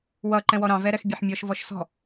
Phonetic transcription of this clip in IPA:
w ʌ ǃ ɛ̃ w ɔ ɾ ɑ̃ v ɛ ɾ ɛ x bʲ e ħ mʲ ɔ ʃ v ɔ ʃ s ɔ̤

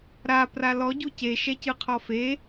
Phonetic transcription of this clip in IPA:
ɾ a p r a l ɔ ɟ u c e ʃ ɛ c ɯ qʰ ɔ f e

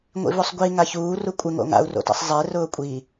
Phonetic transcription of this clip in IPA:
ŋʷ ḭ v o sˤ ɡʷ i ŋ a ç uː r u kʷʼ ɪ ŋ o̰ ŋ a̰ u̯ r o̰ t ḭ sˤ zˤ e r ʊː kʷʼ i

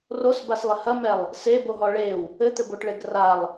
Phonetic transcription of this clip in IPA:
r o s b a s lˠ ɘ h ɐ m ɛ lˠ | s e b o ɦ ɔ ɭ e w | ɘ t̪ ɘ b o ʈ ɭ e ɡ r a lˠ

